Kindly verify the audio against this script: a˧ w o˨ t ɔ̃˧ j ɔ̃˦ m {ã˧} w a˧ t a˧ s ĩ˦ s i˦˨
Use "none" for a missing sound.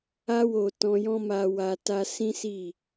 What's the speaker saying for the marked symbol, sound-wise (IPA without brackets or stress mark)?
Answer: a˧